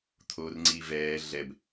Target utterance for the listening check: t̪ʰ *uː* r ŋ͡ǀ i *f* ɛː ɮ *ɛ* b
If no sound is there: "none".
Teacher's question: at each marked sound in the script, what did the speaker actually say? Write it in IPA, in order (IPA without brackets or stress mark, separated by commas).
oː, v, ɛ